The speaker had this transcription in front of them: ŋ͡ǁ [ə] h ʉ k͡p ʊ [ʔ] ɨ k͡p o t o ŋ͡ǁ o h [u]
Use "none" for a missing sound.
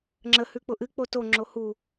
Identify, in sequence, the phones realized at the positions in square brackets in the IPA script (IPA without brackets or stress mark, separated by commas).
ə, ʔ, u